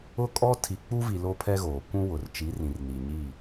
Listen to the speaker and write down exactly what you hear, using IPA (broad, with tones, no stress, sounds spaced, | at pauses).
ʊ˦ kʼ ɔ˦ tʰ i˨ k͡p u˦ v i˨ l o˦ pʰ ɛ˦ ɣ oː˨ kʷ ũ˦ w ʊ˨ r t͡ʃ i˨˦ r ĩ˨ r n i˨ ɲ i˦˨